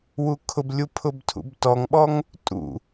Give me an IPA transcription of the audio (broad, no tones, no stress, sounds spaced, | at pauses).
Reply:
w u kʰ ʊ b lʲ u pʰ ʊ b tʰ ṵ b t ɔ ŋ ɓ ɔ ŋ | tʼ ṵ